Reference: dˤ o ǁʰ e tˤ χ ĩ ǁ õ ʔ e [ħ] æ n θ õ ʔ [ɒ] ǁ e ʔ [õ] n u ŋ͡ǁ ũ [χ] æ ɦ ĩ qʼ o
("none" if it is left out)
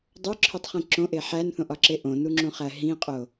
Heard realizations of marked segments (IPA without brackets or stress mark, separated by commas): ħ, ɒ, õ, χ